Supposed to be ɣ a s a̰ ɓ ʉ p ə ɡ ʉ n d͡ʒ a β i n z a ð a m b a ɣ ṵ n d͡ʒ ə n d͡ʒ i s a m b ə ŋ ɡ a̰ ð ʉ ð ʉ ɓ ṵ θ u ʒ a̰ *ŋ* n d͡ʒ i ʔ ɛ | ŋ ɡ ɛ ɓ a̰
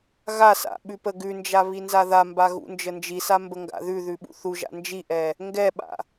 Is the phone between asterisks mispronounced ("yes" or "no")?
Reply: yes